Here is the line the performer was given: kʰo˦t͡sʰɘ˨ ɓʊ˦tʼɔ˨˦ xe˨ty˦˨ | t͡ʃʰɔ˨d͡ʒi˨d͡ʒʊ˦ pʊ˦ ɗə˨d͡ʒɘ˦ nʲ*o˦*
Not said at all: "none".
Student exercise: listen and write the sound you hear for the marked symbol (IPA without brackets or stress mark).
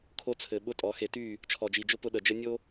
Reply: o˦